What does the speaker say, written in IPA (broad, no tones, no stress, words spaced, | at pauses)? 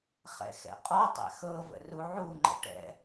χɛ̰xɛ̰qʼɔtˤɛ̰ xɤvə̰ ruʕuŋ͡ǃə̰ ʈɛ̰